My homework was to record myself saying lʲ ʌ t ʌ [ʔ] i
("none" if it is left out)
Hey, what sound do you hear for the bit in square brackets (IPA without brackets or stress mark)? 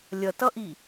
ʔ